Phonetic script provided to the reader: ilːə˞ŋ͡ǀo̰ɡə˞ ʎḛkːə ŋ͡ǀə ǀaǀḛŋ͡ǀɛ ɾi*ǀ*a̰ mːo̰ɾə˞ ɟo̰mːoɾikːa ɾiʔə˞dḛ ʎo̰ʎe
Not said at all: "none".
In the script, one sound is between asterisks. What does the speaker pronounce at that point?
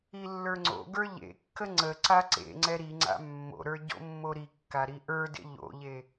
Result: ŋ͡ǀ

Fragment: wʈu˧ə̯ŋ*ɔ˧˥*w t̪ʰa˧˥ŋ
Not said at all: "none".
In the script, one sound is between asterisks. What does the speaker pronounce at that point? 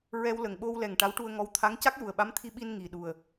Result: ɔ˧˥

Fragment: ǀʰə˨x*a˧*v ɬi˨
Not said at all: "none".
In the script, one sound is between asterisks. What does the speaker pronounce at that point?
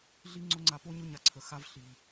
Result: a˧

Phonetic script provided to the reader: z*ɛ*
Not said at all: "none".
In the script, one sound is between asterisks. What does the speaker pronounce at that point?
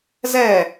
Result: ɛ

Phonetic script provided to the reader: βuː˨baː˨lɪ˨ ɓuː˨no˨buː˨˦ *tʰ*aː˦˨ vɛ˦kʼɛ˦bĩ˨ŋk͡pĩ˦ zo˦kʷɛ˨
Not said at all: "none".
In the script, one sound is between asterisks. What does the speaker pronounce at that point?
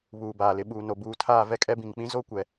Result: tʰ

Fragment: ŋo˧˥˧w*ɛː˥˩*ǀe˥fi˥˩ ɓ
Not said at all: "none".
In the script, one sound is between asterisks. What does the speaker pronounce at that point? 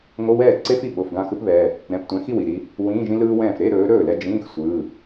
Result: ɛː˥˩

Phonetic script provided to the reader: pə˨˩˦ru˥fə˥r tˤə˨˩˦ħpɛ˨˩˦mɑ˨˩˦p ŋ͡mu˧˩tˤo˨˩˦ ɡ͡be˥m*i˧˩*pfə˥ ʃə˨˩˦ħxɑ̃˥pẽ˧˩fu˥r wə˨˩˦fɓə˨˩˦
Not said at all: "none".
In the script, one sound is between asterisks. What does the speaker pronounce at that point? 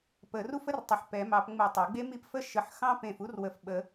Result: i˥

